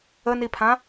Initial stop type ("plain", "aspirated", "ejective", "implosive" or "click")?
aspirated